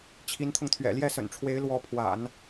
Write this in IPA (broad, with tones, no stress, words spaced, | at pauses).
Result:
t͡ɕʰi˧˥nt̪ʰʊ˧ŋt̪ʰɥɛ̰˨˩ ljɛ˥˩sə̰˨˩nʈ͡ʂʰwe˧˥ɪ̯ lwɔ˧˥pʰwa̰˨˩˦n